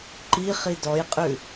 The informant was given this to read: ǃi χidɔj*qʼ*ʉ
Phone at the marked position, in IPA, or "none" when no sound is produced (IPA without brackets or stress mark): qʼ